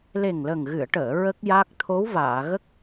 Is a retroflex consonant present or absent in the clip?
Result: present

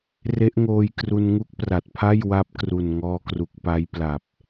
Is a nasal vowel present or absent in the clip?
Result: absent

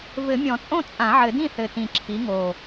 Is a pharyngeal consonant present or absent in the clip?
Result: present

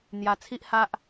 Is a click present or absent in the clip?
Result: absent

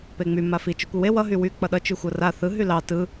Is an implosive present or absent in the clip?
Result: present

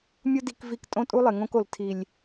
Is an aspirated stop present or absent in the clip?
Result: present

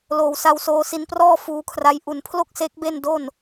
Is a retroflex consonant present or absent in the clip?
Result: absent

